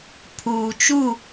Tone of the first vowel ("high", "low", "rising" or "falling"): low